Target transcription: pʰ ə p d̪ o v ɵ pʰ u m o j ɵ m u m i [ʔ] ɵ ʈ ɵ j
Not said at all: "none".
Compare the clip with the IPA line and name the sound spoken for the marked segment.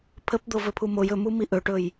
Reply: ʔ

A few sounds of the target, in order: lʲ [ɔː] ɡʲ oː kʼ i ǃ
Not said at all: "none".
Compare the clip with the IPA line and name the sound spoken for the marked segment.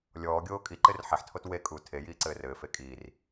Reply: ɔː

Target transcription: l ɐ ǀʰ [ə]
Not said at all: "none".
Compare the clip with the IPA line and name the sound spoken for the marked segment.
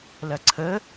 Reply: ə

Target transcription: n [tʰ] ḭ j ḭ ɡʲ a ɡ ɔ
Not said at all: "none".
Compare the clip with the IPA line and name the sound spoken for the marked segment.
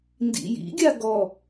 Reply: d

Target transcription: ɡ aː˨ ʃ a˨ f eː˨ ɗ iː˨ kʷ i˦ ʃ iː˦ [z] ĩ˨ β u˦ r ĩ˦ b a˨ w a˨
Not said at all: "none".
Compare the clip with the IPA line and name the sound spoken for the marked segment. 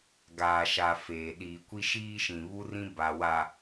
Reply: ʃ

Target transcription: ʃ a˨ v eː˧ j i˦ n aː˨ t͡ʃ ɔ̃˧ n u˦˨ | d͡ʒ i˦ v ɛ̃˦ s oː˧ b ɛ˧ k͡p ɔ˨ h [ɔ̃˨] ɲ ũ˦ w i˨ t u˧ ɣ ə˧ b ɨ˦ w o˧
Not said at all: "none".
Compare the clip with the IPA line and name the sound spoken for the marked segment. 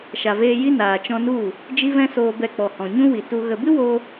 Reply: ɔ̃˨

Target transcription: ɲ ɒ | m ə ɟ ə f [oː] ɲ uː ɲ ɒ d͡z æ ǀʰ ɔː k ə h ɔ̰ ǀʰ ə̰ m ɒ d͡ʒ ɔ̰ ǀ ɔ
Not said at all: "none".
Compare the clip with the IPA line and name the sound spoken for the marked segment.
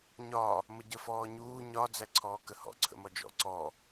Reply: ɔː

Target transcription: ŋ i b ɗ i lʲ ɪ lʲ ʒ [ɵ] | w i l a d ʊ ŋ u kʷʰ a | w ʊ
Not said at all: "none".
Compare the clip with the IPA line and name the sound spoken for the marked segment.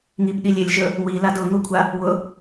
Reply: ɵ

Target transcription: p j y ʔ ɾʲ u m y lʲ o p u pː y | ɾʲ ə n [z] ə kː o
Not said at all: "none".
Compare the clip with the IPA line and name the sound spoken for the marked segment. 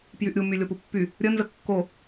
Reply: z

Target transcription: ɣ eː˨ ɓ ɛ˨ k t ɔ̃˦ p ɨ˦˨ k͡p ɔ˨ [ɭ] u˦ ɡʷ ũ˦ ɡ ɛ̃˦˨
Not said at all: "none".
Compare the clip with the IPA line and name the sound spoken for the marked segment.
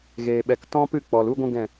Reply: l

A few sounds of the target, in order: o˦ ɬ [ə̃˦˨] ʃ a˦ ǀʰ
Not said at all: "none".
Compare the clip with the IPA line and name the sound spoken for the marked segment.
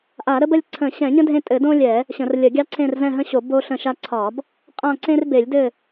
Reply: ə̃˦˨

